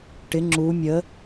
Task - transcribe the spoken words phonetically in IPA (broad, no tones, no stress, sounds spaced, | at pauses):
ʈ ɪ ŋ͡ǁ u mʲ ə